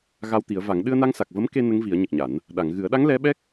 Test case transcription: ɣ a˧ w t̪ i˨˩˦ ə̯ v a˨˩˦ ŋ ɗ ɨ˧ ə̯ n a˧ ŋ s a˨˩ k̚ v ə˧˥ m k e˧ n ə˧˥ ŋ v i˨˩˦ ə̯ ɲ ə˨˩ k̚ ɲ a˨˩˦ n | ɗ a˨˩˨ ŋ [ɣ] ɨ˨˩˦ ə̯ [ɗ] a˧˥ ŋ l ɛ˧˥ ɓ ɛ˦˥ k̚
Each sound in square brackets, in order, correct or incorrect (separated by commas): correct, correct